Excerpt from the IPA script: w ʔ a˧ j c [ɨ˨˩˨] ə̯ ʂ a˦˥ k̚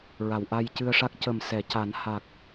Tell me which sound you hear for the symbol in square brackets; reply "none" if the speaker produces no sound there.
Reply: ɨ˧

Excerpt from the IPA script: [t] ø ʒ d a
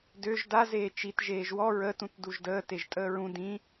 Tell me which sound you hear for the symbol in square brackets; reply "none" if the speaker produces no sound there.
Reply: d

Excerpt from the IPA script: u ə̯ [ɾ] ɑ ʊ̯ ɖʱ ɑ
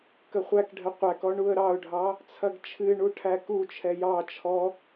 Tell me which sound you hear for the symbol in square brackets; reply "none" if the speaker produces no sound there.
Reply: ɾ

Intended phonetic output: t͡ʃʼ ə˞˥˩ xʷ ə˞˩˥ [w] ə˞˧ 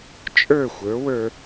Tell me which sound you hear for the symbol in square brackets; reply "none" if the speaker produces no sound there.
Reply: w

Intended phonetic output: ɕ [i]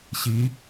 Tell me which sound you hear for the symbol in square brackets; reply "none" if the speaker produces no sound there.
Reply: i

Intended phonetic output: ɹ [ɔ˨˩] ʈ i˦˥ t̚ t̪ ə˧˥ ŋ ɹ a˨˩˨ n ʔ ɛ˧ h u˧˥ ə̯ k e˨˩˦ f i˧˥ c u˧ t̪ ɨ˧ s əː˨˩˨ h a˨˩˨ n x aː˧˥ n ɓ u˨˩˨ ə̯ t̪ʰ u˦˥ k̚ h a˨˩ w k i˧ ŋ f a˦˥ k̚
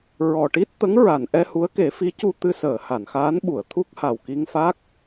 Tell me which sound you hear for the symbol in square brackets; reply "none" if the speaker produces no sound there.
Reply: ɔ˨˩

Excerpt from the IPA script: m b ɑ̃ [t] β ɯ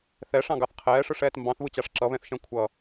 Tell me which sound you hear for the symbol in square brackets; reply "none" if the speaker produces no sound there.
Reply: θ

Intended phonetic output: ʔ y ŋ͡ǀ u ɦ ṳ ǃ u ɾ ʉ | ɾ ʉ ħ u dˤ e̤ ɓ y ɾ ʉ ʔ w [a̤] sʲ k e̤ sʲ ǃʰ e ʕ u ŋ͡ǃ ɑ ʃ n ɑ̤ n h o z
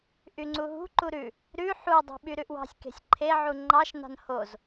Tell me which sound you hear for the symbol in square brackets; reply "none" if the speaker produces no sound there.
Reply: ɑ̤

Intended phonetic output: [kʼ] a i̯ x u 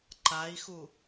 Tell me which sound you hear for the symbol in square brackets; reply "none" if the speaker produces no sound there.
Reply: ǃ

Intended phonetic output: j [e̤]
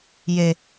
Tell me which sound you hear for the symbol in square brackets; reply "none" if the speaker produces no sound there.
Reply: e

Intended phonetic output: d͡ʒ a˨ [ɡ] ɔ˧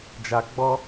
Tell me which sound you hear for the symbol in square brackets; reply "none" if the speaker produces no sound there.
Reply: ɡ͡b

